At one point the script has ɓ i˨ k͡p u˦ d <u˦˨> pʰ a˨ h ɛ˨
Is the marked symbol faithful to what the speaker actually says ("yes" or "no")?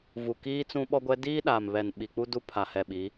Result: no